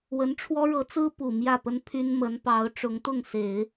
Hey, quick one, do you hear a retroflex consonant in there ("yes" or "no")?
yes